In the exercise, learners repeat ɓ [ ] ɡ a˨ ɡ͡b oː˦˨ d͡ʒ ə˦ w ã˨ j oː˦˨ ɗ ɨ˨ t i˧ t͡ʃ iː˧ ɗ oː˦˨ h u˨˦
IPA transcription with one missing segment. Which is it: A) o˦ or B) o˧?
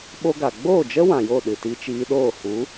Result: A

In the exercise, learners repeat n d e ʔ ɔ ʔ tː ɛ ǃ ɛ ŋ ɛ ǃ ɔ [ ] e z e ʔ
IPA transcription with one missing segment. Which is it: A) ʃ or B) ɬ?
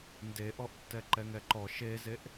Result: A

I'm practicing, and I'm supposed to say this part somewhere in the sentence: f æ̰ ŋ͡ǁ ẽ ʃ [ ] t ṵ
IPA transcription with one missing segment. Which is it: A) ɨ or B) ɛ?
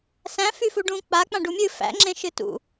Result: A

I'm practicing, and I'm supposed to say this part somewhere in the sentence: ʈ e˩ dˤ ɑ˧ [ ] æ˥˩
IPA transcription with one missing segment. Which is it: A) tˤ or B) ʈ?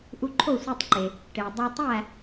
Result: A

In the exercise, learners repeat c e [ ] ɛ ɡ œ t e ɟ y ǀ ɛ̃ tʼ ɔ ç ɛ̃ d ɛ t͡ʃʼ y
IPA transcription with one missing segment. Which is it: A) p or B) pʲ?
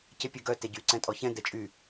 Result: B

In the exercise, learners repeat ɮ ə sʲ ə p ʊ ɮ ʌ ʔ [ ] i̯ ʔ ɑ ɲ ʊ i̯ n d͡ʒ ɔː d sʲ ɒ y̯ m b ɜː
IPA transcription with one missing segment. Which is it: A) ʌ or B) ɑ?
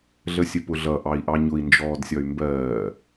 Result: B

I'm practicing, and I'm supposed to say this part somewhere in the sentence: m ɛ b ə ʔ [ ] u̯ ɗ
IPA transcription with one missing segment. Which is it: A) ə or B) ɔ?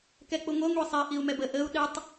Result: A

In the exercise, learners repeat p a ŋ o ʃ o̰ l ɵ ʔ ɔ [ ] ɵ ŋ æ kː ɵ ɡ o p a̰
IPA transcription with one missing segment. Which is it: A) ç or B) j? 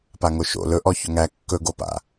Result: A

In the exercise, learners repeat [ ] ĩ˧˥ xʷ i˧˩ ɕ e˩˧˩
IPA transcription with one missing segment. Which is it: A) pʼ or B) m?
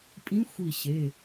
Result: A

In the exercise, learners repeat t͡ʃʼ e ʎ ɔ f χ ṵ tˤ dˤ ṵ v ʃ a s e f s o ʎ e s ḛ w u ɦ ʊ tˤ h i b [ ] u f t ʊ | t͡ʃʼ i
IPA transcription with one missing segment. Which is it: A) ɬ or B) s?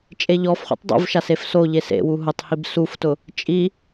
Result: B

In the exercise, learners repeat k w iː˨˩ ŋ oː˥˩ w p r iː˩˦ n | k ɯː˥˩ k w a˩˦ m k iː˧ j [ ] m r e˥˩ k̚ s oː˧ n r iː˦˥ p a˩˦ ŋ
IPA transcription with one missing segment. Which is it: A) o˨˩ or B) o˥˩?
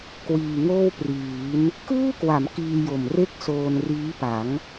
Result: A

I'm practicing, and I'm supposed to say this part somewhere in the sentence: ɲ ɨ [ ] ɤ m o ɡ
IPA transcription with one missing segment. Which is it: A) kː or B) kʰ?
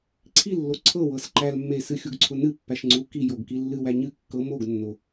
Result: A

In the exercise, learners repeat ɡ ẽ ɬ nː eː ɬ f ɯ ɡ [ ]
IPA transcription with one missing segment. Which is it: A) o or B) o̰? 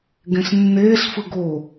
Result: A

